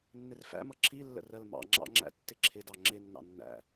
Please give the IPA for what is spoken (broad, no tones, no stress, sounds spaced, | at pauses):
nː ɪ r f æ̰ m ʌ ǁʰ i lː ə̰ r ɜ l m ɑ̰ ŋ͡ǁ ɑ̰ ŋ͡ǁ æ̰ tː ɪ ǁʰ ɪ d ɑ ŋ͡ǁ ɪ nː ɑ̰ nː æ̰